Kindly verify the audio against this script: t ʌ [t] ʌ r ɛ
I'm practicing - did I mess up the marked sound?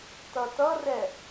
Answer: no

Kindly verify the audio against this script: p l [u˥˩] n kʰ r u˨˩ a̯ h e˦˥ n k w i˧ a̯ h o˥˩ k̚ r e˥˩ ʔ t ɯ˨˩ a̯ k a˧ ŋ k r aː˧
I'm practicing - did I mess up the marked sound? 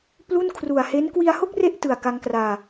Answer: no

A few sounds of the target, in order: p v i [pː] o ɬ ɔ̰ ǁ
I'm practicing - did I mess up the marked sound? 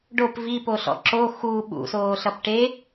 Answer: yes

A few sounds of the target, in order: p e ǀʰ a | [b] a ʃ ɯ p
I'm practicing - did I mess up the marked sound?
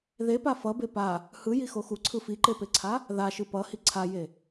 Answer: yes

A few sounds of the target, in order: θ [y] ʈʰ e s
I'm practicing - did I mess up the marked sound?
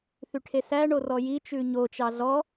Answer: no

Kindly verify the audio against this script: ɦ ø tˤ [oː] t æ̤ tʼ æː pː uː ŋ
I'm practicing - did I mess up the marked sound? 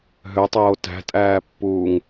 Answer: no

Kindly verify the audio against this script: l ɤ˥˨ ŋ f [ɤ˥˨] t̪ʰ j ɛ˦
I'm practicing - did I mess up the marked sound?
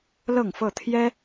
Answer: no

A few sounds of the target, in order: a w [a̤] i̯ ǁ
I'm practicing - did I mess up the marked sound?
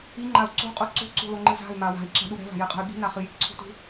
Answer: no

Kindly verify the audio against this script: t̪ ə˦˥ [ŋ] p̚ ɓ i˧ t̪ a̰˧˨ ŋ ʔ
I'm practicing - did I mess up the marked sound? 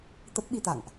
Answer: yes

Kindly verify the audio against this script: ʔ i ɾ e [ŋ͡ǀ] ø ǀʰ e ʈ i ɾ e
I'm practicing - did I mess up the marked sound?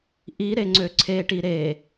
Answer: no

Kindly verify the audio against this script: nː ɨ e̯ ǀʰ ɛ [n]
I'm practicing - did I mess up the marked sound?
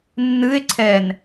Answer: no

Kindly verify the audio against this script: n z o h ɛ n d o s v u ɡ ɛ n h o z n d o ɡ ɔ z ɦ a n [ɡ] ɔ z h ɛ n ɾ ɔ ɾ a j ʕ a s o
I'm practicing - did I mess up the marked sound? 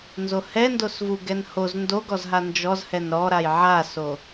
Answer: yes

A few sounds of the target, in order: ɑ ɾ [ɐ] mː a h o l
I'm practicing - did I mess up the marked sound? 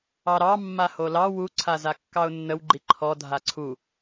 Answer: yes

